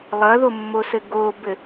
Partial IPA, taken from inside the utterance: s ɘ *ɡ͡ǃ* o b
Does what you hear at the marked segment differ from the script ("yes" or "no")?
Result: yes